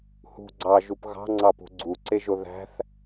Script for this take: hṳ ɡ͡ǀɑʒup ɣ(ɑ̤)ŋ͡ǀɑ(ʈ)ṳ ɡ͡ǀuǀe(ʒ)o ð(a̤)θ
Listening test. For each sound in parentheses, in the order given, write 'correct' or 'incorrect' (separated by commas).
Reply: correct, incorrect, correct, incorrect